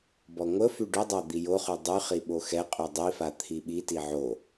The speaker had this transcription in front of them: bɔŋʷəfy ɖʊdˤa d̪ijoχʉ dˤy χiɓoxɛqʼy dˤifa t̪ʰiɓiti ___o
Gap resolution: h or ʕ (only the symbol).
ʕ